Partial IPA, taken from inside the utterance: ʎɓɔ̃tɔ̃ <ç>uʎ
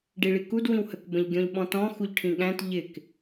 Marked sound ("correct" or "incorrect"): incorrect